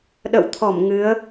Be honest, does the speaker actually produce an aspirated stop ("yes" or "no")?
yes